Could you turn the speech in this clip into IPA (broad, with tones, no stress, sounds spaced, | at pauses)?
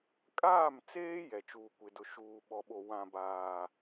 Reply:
kʼ aː˦˨ m t͡s eː˦ j ɛ˨ t͡ʃ uː˨ kʷ ɪ˨ d ʊ˨ ʃ uː˨ ɓ ɔ˨ ɓ o˨ w ã˨ b aː˨